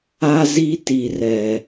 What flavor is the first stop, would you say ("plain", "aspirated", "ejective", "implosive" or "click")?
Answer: plain